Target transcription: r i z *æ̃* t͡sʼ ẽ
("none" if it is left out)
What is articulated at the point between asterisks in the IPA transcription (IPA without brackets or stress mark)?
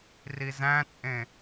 æ̃